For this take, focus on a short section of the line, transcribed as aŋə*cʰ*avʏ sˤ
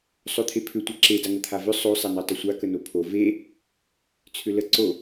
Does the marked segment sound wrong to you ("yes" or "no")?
yes